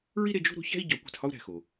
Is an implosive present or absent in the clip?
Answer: absent